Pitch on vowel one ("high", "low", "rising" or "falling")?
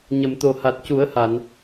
low